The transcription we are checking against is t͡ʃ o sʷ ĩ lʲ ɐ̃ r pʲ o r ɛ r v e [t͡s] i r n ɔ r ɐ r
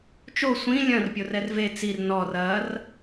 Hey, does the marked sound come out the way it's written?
yes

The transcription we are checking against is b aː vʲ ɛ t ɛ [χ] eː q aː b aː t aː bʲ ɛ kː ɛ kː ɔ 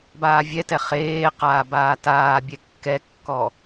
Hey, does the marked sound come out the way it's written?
yes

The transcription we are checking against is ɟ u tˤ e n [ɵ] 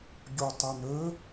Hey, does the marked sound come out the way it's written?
yes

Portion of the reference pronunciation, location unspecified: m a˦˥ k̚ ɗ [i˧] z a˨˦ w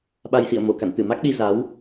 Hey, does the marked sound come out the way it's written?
yes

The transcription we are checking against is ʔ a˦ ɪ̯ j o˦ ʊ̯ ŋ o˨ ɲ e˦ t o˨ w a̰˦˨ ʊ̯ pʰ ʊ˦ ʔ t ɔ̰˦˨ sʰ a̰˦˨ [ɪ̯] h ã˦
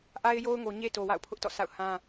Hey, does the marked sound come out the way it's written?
no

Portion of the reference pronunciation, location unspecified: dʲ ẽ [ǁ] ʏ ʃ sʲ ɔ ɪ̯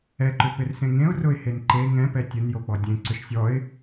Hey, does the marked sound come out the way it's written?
no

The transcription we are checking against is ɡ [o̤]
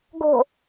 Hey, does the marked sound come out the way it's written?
yes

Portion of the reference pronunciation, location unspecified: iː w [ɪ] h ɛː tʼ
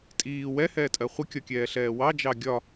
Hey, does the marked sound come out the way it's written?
no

